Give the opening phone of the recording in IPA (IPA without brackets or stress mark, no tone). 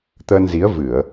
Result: t̪